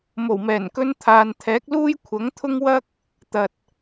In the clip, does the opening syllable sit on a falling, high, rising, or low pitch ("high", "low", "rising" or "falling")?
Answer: low